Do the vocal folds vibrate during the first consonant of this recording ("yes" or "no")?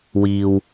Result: yes